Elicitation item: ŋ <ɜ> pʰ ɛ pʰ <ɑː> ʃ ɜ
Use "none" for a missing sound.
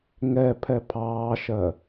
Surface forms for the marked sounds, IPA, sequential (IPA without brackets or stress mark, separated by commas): ɛ, ɑː